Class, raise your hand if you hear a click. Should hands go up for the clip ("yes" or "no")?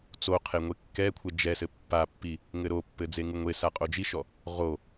no